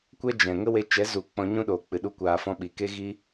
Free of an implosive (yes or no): no